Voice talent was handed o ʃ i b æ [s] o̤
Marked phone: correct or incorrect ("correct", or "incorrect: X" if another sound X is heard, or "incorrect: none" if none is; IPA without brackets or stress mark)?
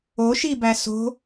correct